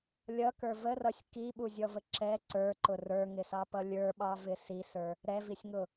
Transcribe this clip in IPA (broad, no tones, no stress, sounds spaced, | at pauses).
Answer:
lʲ ʌ k ə˞ v ə r ʌ sʲ k i ɓ u zʲ ɔ v ə ǁ ɛ ǀ ə˞ ǃ ʊ r ə˞ ŋ ɪ s ɑ p ʌ lʲ ə˞ ɓ ɑ v ɪ s i s ə˞ | ɾ ɛ v i sʲ ŋ ʊ